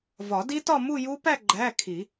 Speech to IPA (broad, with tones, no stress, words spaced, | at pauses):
vɒ˨˩˦di˦˥tɒ˥˧ mu˥˧ju˦˥pæ˥˧ ɡ͡ǃæ˧˥˧kʰi˨˩˦